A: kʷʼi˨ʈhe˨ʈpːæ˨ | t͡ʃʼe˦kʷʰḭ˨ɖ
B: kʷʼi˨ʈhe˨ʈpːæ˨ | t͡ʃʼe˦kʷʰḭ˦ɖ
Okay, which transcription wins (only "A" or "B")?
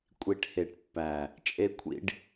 B